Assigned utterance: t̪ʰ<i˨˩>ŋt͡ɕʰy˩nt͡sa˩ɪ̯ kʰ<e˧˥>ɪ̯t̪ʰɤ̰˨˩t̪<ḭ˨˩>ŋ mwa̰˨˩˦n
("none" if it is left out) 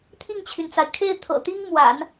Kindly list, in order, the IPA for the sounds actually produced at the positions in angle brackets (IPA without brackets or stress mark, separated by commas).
i˥˩, e˥˩, i˥